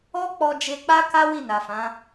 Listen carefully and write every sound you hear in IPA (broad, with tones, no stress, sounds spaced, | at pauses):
ɔ˦ k͡p ɔ˧ d͡ʒ e˧ k͡p a˦ k a˦ w i˦˨ n a˨ f ã˨˦